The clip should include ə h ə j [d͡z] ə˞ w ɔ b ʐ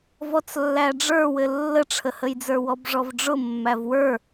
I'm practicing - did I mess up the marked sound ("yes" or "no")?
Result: no